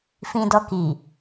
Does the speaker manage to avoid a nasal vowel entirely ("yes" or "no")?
no